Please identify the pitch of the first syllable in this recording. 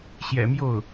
low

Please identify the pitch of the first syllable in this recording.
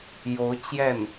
rising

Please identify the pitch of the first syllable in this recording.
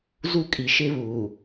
high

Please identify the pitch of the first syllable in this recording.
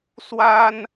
high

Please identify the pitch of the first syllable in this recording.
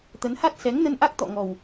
rising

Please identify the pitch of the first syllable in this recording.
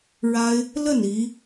high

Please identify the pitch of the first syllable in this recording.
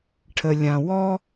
low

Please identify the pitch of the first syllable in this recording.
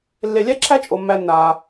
low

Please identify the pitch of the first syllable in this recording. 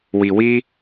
low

